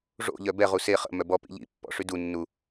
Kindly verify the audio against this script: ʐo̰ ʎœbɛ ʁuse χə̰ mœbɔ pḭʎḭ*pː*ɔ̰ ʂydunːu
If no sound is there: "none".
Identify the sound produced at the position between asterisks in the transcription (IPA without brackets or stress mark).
pː